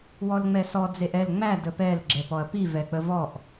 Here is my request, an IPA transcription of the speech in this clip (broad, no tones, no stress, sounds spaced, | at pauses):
w ɔ l ŋ͡m ɛ s ɔ d͡z e ʔ ɛ l ŋ͡m æ d ə p ɛ l ɡ͡ǁ ɛ p ɔ ɐ̯ p i v ɛ k͡p ə v ɔ ʔ